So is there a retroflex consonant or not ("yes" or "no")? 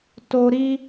no